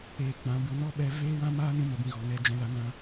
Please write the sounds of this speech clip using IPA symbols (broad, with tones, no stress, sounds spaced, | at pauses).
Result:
eː˨ k͡p ã˨˦ b ɨ˨˦ n ɔ˦ ɓ ɛ˧ v eː˦ w ã˦ m aː˦ n ũ˧ m ə˨ b ĩ˧ ɣ ɔ˨ ŋ ɛ˧ d͡ʒ ɛ̃˧ l a˧ n ã˧